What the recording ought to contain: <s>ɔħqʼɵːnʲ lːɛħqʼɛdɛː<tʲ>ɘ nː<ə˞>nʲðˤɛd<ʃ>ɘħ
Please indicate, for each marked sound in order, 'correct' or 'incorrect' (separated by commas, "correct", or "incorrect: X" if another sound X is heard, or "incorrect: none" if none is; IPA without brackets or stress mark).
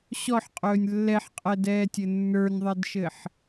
incorrect: ɕ, correct, correct, correct